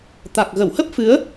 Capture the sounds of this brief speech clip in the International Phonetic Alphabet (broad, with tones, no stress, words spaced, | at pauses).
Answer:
t̪a˨˩k̚ɣə˧˩whə˦˥p̚fɨ˨˦ə̯